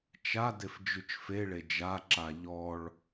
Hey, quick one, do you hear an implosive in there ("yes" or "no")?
no